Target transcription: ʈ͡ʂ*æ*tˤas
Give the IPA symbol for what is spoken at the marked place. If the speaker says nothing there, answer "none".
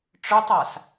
œ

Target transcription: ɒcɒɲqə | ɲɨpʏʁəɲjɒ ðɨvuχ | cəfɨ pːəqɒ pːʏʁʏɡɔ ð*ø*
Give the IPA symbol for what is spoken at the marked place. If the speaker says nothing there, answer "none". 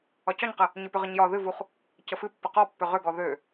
ø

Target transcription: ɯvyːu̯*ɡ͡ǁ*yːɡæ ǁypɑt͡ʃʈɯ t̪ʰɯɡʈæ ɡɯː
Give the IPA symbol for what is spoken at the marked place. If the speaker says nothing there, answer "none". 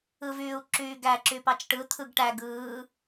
ǁ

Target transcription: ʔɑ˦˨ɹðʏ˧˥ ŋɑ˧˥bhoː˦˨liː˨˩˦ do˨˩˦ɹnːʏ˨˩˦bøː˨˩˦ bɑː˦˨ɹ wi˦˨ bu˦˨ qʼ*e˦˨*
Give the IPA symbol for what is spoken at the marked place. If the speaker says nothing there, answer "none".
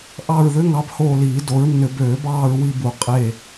e˦˨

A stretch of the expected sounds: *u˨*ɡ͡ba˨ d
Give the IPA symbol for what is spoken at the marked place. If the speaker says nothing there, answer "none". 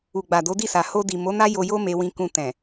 u˨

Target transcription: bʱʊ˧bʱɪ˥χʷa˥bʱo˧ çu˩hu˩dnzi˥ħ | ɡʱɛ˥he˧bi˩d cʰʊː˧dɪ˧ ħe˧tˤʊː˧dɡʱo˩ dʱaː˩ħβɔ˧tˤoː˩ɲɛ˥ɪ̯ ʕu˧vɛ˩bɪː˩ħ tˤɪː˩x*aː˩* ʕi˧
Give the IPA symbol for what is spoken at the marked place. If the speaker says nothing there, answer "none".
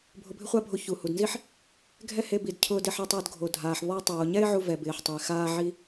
aː˧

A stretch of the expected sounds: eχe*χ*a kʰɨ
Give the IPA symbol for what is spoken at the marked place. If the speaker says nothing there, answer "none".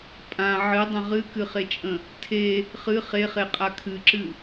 qʼ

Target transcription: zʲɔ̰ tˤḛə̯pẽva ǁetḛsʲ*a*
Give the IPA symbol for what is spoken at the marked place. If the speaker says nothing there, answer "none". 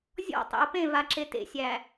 æ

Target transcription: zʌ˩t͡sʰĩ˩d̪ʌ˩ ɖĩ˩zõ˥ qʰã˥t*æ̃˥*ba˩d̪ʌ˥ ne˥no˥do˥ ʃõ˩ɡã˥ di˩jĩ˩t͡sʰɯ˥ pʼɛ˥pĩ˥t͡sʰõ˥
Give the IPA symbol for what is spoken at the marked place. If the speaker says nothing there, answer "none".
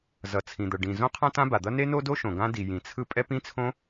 ã˥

